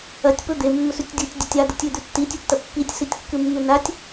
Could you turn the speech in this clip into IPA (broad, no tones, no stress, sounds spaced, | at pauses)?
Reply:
ɐ tʲ p ɵ d̪ e mː ɵ s ʉ tʲ dʲ u tʲ dʲ ɐ tʲ a d̪ ɨ tʲ ʉ d̪ ʉ tː i tʲ ʉ tː ɐ pː i tʲ s i tʲ kː ɨ mː ʉ n a tʲ